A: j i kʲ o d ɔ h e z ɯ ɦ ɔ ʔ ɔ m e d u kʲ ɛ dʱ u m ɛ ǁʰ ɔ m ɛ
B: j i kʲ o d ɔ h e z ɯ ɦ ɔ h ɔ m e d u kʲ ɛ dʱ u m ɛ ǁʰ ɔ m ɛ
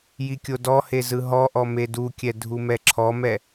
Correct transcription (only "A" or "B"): A